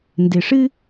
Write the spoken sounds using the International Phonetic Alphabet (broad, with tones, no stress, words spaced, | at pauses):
ndɪ˧ ʂɨ˦